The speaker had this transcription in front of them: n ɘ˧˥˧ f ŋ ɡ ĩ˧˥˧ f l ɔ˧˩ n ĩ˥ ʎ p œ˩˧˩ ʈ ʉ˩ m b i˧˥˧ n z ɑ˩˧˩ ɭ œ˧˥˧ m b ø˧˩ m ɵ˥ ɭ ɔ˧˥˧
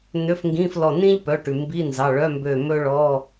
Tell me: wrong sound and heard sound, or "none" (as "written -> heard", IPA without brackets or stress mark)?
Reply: ɘ˧˥˧ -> ø˧˥˧